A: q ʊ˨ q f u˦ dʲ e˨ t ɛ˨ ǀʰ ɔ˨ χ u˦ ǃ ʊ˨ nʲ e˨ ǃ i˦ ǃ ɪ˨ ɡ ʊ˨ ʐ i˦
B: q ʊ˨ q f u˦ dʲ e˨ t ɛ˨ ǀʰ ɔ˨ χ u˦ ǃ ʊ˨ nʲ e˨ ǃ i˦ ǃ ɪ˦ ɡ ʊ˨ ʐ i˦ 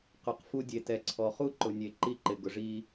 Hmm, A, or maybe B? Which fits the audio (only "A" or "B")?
A